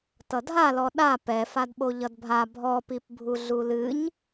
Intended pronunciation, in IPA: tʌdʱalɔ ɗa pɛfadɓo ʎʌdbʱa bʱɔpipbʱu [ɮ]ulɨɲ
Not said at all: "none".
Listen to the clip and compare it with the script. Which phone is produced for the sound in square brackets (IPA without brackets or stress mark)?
ɮ